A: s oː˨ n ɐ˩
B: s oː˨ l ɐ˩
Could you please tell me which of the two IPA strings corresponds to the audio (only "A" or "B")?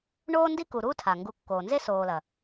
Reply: B